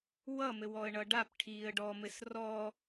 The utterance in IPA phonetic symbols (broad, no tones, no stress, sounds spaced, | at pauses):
w ʌ m ɘ w ɔ ə̯ ɳ ʌ ɖ a p ʈʰ iː ə̯ ɖ ɔ m ɘ s r ɔ